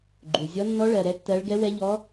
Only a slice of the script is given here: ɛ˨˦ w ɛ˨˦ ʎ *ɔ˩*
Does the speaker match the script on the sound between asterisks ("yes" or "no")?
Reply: no